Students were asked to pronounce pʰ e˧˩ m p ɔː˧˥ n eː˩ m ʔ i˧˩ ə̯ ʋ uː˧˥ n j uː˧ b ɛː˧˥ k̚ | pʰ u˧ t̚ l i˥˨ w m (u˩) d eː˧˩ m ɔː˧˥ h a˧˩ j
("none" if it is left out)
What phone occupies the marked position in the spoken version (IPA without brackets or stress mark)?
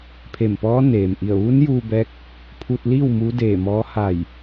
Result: u˧˥